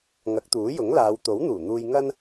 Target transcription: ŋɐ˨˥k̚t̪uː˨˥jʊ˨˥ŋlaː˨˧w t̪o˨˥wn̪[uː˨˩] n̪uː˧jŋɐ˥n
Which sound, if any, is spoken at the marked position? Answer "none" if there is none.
uː˨˩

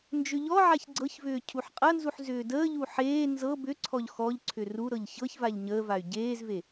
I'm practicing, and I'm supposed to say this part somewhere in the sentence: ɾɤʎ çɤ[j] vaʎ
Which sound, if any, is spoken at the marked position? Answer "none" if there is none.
ç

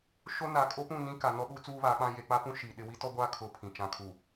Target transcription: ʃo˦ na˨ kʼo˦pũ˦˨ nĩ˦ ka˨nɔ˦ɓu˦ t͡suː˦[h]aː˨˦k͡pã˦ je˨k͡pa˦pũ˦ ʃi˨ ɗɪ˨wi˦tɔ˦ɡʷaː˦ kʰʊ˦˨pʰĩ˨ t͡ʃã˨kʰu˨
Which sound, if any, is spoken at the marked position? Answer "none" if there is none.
β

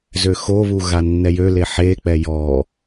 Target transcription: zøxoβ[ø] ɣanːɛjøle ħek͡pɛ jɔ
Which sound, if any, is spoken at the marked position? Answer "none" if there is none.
u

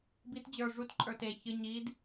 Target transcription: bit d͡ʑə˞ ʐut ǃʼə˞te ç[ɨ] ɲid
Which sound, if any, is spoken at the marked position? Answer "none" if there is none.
ɨ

